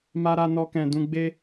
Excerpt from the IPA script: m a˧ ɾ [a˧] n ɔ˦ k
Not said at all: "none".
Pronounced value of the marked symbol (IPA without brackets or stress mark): a˧